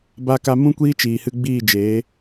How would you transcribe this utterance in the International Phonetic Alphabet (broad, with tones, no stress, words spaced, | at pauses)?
ba˧ka˧ mũ˦kʷiː˦t͡ʃiː˨hɨ˧ ɡ͡biː˦˨d͡ʒeː˨˦